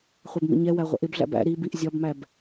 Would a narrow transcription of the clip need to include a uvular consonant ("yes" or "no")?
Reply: yes